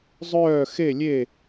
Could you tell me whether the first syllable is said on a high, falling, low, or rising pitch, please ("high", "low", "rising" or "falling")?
falling